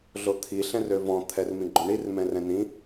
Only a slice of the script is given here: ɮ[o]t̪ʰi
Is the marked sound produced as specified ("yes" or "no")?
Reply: yes